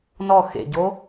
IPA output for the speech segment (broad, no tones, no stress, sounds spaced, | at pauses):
n ɔ x ḛ ɟ o